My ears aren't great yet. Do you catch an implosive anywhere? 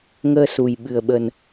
yes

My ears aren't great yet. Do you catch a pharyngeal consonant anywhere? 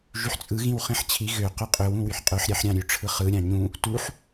yes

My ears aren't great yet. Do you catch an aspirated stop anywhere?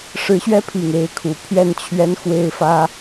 yes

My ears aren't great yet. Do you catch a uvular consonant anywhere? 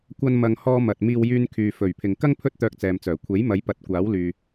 no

